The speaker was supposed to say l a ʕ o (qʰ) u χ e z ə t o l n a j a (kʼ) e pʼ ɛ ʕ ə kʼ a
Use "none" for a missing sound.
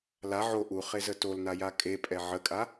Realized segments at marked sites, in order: ʔ, kʼ

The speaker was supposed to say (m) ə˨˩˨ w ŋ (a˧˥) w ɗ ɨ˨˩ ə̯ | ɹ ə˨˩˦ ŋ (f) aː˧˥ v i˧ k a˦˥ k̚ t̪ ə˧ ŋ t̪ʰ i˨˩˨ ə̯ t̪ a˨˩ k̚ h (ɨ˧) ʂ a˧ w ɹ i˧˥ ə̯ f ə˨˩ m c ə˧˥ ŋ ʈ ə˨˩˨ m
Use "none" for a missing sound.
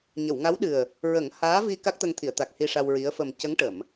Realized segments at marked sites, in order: ɲ, a˧˥, h, i˧

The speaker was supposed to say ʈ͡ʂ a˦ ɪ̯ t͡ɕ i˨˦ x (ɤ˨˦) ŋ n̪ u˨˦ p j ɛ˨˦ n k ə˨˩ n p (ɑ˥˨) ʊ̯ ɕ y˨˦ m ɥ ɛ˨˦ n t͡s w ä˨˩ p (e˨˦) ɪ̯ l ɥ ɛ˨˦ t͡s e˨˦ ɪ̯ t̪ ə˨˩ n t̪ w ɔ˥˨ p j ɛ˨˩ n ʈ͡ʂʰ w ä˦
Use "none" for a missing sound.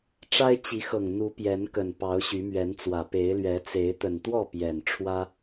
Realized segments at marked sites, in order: ɤ˨˩, ɑ˨˦, e˨˦

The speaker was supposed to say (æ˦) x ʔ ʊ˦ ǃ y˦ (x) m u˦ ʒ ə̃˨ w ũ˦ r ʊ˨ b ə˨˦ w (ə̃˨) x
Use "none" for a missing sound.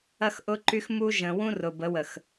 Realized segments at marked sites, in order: ɐ˦, x, ə˨

